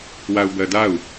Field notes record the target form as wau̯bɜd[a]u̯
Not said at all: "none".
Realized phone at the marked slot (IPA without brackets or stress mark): a